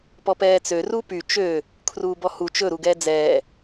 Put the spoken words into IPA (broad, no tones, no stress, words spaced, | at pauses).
pɔpɛːt͡sø rupy t͡ʃø | kʰruːbɔhu t͡ʃɵ ɾuɡɛːd͡zɛː